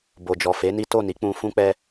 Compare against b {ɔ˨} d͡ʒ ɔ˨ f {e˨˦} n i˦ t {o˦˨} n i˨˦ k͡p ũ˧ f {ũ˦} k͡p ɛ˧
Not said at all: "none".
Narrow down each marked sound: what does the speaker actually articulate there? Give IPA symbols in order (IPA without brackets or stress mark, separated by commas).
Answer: o˨, e˨˦, o˦˨, ũ˦